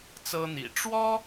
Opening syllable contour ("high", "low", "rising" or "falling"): high